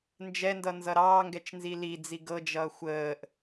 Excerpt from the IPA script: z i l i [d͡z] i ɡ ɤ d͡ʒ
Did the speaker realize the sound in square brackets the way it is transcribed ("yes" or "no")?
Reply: yes